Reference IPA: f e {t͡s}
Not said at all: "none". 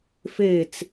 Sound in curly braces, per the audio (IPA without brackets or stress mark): t͡s